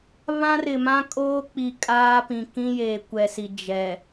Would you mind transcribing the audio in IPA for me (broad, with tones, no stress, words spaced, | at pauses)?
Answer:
βã˦ rɪ˨mã˦kʼoː˦k͡pi˨ kʼaː˦pĩ˨ kĩ˦ jeː˨kʷɛ˨si˨ d͡ʒɛ˨